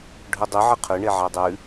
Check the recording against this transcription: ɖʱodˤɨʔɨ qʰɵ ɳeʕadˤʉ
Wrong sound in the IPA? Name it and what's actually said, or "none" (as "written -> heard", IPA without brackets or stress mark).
ʔ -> ʕ